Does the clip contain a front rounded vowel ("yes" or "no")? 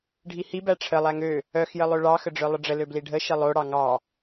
yes